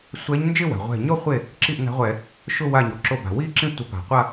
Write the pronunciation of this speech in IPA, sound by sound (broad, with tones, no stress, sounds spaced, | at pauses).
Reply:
sʷ ɛ˧˥ ɲ n d͡ʒ ɪ˥˧ w a̤˩ ʁʷ ɛ̤˧˩ ɲ ɔ˥˧ χʷ e˥˩ | ǁ i˥˩ ʔ n a̤˧˥ ʁʷ ɛ˧˩˧ | ʃ ʊ˥˧ w a˧˩ ɲ ɔ˩ ǁ o˧˩ b a̤˩ w i˥˧ ǁ ĩ˥˧ tʷ ɪ˧˩˧ p a̤˩ qʷ a˥˧